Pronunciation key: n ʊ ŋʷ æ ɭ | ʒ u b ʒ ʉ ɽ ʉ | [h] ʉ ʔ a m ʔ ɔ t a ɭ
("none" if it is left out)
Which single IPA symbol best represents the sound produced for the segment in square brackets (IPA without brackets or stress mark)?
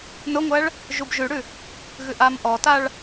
ɣ